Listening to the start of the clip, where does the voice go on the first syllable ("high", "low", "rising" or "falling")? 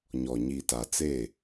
low